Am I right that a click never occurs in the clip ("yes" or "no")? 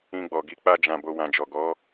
yes